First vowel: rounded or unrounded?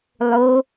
rounded